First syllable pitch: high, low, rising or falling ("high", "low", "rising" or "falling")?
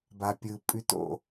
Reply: low